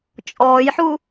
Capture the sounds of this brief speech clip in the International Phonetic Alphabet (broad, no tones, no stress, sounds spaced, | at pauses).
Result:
t͡ʃʼ ɔː j ħ u